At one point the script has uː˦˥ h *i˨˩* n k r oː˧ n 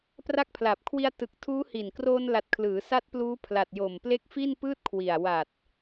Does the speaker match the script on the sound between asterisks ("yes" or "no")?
yes